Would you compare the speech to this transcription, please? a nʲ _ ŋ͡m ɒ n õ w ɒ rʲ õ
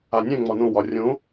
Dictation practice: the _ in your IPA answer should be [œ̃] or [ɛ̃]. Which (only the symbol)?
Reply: ɛ̃